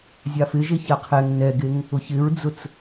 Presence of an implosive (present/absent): absent